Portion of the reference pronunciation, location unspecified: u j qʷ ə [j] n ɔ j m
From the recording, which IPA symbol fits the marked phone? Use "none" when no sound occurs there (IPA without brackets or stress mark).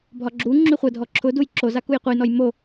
j